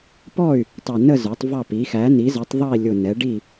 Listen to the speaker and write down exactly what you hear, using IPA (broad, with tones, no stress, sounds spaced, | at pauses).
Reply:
p ɔ˥˨ y̯ | tˤ ʌ˧˩ n ə˥˨ z ə˞˩˥ tˤ v ɑ˥˨ p i˩˥ x æ˩˥ n i˩˥ z ə˩˥ tˤ ðˤ ʌ˥˨ i̯ lʲ ʊ˧˩ n ɛ˩˥ ɖ i˥˨